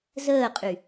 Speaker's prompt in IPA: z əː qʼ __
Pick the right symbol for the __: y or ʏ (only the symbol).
y